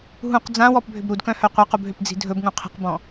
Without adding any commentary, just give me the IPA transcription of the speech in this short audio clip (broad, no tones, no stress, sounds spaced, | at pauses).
ɦ ũ q d͡z ã w ɔ p bʱ ʏ b ɾ u d k œ̃ h œ qʷ a q u b ɦ ʏ p d͡z i̤ dʱ ɵ b ŋ ũ qʰ i̤ q b ɔ̃